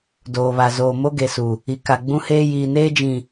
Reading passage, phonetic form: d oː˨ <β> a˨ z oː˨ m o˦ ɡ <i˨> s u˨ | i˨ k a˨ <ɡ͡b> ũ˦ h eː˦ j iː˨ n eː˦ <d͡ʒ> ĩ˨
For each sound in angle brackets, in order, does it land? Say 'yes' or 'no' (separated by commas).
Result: yes, no, yes, yes